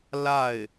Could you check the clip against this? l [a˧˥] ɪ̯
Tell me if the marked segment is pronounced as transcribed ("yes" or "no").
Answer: no